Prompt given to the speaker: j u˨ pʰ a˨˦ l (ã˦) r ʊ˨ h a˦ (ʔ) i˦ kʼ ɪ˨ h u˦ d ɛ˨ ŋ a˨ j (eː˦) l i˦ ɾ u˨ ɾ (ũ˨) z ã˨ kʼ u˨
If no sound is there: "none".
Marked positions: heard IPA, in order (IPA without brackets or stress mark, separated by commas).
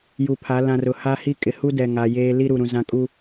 ã˨, h, eː˦, ũ˨